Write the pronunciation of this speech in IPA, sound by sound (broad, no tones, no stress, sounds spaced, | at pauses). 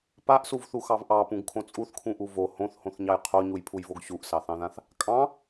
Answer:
p a ʔ s u v θ u x ɑ v ʔ ɑ p ũ ɡ kʰ õ t͡sʼ u θ kʰ ũ ʔ u v o h õ θ h õ θ ɲ ɑ j qʰ o ɲ u j pʰ u j v o ɡ ɕ u ʔ s ɑ θ ɑ̃ ð ã θ | kʼ ɑ̃